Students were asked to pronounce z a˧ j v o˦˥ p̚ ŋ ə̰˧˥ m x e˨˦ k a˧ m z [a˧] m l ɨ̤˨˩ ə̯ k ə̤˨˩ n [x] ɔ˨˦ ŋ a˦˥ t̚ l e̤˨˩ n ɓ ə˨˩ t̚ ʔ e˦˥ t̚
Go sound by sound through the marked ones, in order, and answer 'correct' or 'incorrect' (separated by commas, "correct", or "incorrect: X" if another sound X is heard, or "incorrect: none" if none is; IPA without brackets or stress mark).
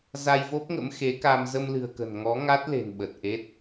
incorrect: ə˧, incorrect: ŋ